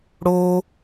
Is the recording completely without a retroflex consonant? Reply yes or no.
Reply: no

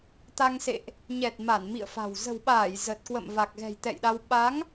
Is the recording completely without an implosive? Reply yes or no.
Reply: no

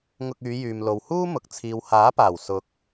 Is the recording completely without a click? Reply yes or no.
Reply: yes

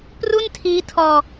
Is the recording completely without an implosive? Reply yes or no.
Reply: yes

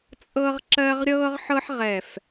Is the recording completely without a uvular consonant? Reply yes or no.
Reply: no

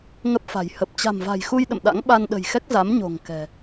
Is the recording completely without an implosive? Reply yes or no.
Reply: no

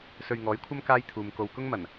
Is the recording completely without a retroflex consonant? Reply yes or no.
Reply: yes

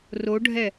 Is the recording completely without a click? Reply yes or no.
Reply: yes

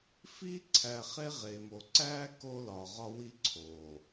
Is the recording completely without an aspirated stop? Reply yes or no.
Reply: no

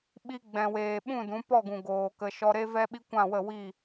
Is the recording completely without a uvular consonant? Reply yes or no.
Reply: yes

